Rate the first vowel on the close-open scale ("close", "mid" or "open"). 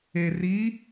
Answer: mid